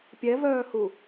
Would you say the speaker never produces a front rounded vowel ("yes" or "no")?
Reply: no